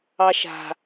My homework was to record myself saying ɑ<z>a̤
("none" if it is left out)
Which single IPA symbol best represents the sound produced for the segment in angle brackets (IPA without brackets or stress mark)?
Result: ʃ